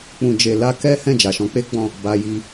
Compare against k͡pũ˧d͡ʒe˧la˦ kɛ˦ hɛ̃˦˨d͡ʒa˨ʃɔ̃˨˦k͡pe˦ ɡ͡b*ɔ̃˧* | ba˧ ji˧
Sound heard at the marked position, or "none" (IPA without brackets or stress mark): ɔ̃˦˨